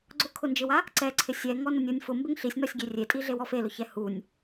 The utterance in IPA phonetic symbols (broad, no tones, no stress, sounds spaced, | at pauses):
ɡ͡ǀ ʊ kʰ ʊ n d͡ʒ ɪ w a | ǀ ɛ ǀʰ ɪ sʲ ɛ ŋ ɔ n ʊ nʲ o nʲ f ʊ m b ɪ ŋ ɬ i sʲ n ɔ sʲ ɡʲ e rʲ e tʼ i ɮ e w ɔ f e l ʊ ç ɛ h u nʲ